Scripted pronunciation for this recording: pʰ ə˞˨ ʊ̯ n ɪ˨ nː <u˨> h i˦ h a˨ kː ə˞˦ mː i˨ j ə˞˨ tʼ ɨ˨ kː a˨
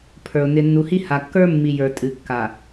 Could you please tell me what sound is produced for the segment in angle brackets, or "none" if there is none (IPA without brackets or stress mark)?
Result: u˨